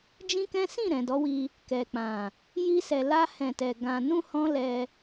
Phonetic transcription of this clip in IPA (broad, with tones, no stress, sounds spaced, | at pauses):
d͡ʒ ĩ˦ k ɛ̃˦ s ĩ˦˨ ɾ ɛ̃˨ d ɔ˨˦ w i˧ | k ɛ˨ k͡p ã˨ | j i˧ s ɛ˨ l a˧ h ɛ̃˨ t ɛ˨ ɡ ã˨ n ũ˧ h ɔ̃˦ l ɛ˧